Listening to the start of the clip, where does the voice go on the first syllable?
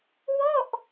falling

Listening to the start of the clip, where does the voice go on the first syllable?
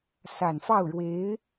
low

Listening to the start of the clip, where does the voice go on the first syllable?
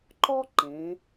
high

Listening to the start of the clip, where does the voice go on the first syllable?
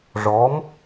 rising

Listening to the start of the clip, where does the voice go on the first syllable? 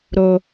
low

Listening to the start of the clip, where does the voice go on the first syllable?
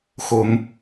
rising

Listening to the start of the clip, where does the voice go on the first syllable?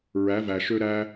rising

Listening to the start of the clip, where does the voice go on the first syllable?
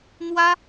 high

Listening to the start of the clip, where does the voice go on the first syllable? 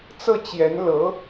falling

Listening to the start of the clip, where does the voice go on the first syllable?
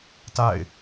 falling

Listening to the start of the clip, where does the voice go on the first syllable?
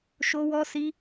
high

